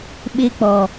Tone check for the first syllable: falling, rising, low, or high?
high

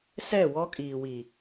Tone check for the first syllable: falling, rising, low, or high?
falling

